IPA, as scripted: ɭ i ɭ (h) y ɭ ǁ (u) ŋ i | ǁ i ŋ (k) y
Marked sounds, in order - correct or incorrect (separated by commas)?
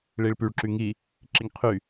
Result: incorrect, incorrect, incorrect